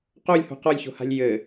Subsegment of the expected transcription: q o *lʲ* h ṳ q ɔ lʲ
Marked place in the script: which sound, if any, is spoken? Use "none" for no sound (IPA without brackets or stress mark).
lʲ